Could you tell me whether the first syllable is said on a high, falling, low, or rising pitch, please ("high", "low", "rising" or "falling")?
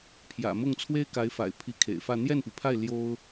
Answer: low